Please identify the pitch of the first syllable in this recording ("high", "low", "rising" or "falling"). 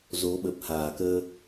rising